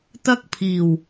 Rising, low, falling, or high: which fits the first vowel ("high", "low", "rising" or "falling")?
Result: high